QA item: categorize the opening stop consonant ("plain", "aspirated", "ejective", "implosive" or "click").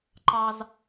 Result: click